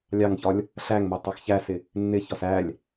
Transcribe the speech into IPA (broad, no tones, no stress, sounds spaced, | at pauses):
lʲ ɑ ŋ ç ɒ lʲ | ɬ æ ŋ m æ tˤ ɑ x ç æ s ɪ | nː ɪ ç ɒ s æ lʲ